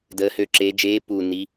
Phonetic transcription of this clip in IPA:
dəː˧˥hø˦˨ǁeː˧˥ d͡ʒeː˧˥ pu˦˨ni˧˥

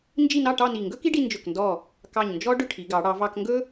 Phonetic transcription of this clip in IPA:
nd͡ʒi˥˧nɑ˥˧ ʈɑ˥˧ni˧˩ ŋɡɵ˥ki˥ɖi˧ nd͡ʒɵ˧˩kndɔ˧˩ | kɑ˧˩ɲnd͡ʒɔ˥ ɖʏ˥˧ʈʰi˩˧ɡɑ˩˧ ɽɑ˩˧vɑ˧kŋɡɵ˥

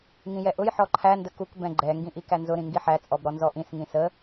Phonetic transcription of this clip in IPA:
ŋĩjɛʔʊj ħɔǃʰæ ndəkuk bɛ̃ɡ͡ǃɛ ŋɡĩʔikænzʊ ɾĩŋɡiħæ t͡sʼɔbɾɔnzɔʔĩs ŋĩsə

